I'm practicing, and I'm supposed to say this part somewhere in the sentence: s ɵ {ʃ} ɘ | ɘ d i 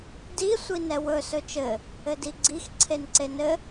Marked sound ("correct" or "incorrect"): incorrect